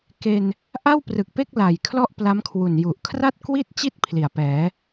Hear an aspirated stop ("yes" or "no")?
yes